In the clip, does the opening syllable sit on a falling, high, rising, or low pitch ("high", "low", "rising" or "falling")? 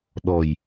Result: low